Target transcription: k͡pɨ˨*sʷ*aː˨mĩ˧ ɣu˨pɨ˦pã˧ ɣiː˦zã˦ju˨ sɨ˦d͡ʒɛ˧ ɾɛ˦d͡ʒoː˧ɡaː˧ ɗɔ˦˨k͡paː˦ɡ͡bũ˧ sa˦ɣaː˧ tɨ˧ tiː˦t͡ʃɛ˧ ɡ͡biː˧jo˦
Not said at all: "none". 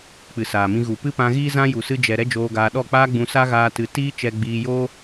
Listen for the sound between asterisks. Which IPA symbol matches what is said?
s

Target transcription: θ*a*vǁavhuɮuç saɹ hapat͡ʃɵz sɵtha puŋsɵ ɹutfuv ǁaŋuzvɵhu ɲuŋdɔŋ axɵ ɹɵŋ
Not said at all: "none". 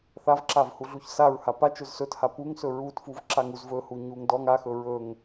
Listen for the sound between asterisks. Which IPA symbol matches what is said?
a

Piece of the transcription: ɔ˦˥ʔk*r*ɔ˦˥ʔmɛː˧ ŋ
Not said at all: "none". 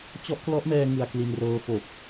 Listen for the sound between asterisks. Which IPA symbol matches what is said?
l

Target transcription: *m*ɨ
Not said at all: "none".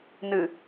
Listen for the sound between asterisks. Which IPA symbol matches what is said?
n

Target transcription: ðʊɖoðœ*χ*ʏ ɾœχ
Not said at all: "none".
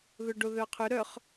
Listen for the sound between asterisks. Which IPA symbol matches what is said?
qʰ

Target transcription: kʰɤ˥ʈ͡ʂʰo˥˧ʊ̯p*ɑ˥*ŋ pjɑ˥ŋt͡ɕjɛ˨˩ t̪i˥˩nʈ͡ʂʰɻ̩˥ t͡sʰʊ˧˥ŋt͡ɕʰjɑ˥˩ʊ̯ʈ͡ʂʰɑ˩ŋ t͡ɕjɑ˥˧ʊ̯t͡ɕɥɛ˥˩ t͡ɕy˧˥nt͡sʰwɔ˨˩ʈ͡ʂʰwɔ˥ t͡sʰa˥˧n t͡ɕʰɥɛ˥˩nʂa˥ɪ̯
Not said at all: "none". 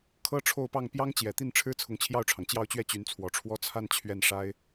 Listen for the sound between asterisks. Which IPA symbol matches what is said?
ɑ˥˩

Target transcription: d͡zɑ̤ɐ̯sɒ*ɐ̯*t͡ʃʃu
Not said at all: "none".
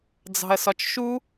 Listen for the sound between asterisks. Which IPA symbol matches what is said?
none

